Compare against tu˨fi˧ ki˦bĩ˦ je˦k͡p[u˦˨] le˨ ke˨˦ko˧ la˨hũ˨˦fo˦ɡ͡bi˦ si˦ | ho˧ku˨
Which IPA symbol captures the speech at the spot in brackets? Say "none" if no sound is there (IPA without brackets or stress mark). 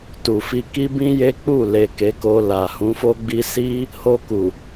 u˦˨